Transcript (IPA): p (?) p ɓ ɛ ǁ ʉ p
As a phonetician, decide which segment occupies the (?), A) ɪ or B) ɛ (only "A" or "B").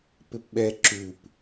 A